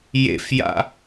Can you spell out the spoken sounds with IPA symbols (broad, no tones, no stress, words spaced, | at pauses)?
jḛfja̰